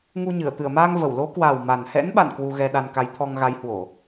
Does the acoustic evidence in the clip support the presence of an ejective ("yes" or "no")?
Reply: no